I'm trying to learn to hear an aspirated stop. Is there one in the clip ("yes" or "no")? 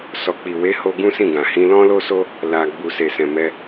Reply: no